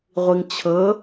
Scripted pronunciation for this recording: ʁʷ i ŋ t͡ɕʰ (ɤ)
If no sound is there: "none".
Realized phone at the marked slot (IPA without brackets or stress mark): ɤ